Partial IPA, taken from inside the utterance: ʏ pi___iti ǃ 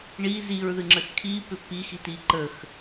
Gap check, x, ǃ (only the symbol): x